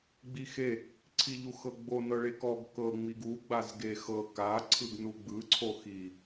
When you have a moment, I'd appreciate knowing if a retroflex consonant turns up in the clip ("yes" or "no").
yes